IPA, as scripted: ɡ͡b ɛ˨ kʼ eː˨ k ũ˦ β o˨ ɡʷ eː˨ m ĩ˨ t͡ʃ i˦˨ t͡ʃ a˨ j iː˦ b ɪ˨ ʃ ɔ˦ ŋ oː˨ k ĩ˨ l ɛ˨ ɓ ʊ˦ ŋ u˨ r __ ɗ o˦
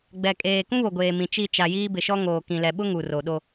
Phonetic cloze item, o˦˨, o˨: o˨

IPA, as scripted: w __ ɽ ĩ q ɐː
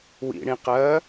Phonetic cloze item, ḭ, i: ḭ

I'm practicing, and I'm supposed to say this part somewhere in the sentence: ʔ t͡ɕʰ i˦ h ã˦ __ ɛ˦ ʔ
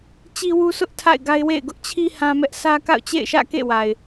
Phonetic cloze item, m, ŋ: m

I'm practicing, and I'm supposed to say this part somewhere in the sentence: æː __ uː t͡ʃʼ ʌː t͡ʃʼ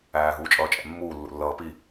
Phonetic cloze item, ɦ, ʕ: ɦ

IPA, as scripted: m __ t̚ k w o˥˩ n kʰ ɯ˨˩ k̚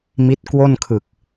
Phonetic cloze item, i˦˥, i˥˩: i˦˥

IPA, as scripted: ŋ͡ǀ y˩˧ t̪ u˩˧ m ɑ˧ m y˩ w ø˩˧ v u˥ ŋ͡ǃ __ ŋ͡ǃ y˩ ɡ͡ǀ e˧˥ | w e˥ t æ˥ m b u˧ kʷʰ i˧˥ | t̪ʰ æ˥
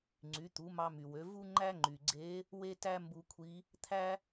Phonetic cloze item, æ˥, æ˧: æ˥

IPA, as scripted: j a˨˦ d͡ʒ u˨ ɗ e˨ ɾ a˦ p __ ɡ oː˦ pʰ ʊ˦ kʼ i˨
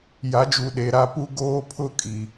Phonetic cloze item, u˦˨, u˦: u˦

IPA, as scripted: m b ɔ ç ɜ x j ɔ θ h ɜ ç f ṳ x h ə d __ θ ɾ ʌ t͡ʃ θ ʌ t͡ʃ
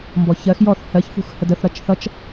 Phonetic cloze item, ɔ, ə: ə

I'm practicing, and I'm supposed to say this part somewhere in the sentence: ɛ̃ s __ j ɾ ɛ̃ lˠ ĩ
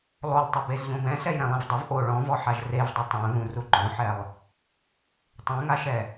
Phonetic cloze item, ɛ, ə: ɛ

